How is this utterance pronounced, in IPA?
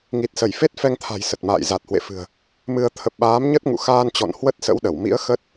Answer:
ŋ i˨˩ t̚ s ə˧˩ j f e˦˥ t̚ f ɛ˧ ŋ t̪ʰ a̤˨˩ j s ə˨˩ t̚ m a̰ː˧˨ j z a˨˩ t̚ h w ḛ˧˨ f ɨ̤˨˩ ə̯ | m ɨ˧ ə̯ t̪ʰ ə˨˩ p̚ ɓ aː˨˦ m ɲ ə˦˥ t̚ ŋ ṵ˧˨ x aː˧ n t͡ɕ ɔ̰˧˨ n h w ə˦˥ t̚ s ə̰˧˥ w ɗ ə˧˩ w m ḭ˧˥ ə̯ x ə˦˥ t̚

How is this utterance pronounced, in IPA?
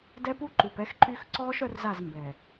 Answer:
d ɛ˦ p u˦ ǃ u˨ p ɛ˦ x ǃ y˦ x ǀ ɔː˦ ʃ œ˦ r z a˦˨ z m b ɛ˨

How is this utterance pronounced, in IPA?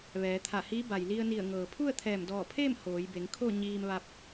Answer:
ʋ ɛː˩˧ t̪ʰ a˧˩ h iː˧˥ b a˩ j l i˧ ə̯ n i˧˩ ə̯ ŋ ɤː˩ pʰ u˥˨ ə̯ t̪ʰ ɛː˧˩ m d ɔː˧˩ pʰ eː˥˨ m h oː˩˧ j b e˩˧ ŋ kʰ o˥˨ ɲ iː˧ m ʋ a˧ p̚

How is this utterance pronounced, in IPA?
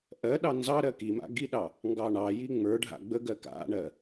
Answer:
ʔ ɜ ɗ ɑ n z ɑ ɾ ɜ k i m a̰ ɡ i ɗ ɑ | ŋ ɡ ɑ ɳ ɑ j i ŋ͡m ə˞ ɖʱ a̰ ɡ͡b ə ɡ ɜ k a̰ ɳ ɜ

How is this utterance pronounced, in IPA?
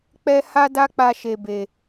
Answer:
k͡p ɛ˦ h a˦ d a˦ k͡p a˧ ʃ e˨ b e˨

